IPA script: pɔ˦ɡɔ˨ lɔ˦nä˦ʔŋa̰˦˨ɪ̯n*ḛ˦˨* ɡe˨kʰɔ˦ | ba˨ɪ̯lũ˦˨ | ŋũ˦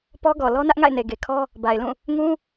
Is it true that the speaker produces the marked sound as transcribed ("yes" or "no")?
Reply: no